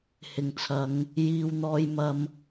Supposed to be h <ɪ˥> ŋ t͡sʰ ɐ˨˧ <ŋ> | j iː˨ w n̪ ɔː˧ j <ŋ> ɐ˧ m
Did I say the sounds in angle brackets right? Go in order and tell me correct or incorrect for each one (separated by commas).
incorrect, correct, incorrect